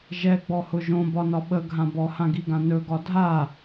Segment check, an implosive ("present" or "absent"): present